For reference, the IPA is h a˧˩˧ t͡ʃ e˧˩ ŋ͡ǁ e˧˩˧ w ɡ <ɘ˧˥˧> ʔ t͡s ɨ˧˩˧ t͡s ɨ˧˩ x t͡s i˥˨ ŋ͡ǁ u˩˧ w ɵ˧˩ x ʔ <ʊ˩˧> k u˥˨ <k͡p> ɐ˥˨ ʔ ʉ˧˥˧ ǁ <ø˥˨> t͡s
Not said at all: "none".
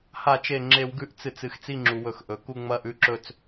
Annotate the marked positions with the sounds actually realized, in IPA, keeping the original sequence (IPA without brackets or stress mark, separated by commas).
ʉ˧˥˧, ɵ˩˧, ŋ͡m, ɵ˥˨